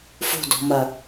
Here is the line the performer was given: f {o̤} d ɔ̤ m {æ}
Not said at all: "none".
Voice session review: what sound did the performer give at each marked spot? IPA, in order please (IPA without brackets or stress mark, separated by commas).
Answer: o̤, ɐ